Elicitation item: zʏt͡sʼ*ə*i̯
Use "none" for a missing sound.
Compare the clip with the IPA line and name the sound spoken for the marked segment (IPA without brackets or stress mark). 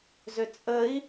ə